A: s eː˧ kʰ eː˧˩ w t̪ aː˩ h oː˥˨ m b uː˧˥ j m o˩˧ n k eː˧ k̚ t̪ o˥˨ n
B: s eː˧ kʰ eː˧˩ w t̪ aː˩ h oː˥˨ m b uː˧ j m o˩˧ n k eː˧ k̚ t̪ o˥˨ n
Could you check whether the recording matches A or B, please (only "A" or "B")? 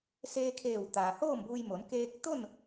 B